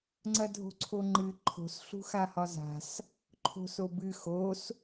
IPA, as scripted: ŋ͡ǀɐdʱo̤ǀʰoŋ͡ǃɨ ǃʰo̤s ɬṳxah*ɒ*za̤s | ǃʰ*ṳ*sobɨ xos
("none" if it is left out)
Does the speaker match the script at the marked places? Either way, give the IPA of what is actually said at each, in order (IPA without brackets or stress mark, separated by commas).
ɒ, o̤